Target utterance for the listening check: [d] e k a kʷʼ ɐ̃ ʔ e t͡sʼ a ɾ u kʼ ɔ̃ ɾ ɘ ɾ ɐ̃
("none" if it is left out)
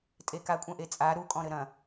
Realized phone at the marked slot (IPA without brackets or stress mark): tʼ